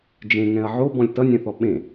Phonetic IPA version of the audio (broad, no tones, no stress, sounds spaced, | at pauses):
d͡ʒ ẽ ŋ ɛ̃ ɐ̯ ʕ o b ɔ̃ lʲ t ʌ nʲ ɛ̃ θ ɔ ɓ ẽ